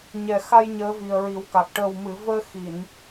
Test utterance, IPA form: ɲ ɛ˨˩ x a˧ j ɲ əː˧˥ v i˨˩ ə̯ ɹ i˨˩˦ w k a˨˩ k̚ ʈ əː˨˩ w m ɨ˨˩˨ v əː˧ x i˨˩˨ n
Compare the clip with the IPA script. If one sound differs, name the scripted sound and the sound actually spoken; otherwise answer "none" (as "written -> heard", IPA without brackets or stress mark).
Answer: none